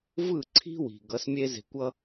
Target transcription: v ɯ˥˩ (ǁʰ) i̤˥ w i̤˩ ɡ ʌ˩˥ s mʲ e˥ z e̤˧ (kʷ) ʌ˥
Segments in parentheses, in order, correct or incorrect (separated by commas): incorrect, correct